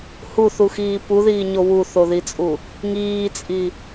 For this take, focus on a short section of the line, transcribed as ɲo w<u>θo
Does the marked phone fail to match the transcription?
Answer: no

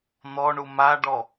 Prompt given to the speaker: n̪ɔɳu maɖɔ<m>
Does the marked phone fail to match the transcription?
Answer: yes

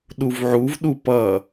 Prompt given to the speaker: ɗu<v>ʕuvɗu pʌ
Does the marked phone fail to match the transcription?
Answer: no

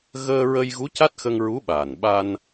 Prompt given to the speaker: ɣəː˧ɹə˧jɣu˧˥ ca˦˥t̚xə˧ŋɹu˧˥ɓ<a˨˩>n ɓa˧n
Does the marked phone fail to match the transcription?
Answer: yes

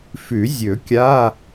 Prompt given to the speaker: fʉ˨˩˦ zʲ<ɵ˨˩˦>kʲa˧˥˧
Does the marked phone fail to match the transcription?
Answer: no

